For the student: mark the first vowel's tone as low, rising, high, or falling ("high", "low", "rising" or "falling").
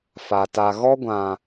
low